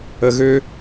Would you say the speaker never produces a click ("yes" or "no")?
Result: yes